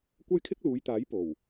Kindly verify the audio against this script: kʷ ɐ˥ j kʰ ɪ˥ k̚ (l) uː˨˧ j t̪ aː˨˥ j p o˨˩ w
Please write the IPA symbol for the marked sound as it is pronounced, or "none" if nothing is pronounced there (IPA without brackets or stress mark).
l